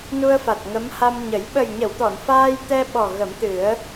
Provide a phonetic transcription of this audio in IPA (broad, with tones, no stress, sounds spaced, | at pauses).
n u˧ ə̯ f a˨˩ t̚ ŋ ə˧˥ m h a˧ m ɲ ə˨˩˦ j ɓ ə˨˩ j ɲ ə˨˩˨ w t̪ ɔ˨˩˨ n f aː˧ j t̪ ɛ˧ ɓ ɔ˨˩ ɣ ə˨˩˦ m t̪ ɨ˨˩˦ ə̯